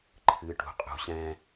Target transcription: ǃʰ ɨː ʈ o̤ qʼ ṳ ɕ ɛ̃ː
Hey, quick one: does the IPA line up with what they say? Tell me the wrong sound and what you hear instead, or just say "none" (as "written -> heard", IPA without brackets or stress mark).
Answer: o̤ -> ṳ